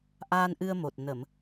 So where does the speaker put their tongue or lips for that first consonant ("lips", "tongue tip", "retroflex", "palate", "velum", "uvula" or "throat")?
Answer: throat